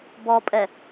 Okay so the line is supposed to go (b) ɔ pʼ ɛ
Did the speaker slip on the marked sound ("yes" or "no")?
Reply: no